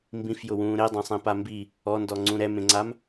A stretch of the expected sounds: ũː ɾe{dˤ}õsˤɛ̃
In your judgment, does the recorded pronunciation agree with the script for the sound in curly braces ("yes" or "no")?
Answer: yes